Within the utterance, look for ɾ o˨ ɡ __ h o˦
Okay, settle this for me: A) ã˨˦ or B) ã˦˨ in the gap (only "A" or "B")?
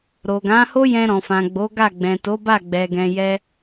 A